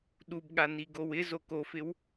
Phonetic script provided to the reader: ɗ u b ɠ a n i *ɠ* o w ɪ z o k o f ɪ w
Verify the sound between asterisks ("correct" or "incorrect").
incorrect